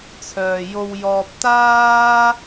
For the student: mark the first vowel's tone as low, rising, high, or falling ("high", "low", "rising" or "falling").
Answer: low